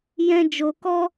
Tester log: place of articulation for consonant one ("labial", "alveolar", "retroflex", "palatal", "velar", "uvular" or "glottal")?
palatal